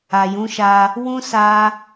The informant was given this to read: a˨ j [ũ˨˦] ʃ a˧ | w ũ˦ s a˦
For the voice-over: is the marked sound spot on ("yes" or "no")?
yes